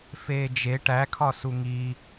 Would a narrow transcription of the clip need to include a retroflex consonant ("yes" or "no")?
yes